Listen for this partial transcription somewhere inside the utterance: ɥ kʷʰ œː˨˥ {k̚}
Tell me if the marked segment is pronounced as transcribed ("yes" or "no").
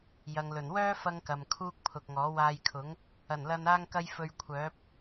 no